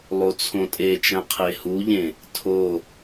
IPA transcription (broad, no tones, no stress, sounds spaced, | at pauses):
lˠ o t͡sʰ õ tʼ e t͡ʃ æ̃ qʰ e h u ʎ ẽ | tʰ o